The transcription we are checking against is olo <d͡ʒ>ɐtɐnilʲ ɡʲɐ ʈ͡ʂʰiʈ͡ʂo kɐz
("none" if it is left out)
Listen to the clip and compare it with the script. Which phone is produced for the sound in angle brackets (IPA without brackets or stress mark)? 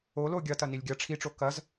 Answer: ɡʲ